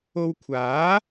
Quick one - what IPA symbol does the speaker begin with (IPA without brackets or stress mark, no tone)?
o